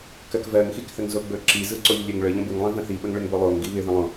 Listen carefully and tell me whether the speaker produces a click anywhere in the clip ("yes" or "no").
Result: yes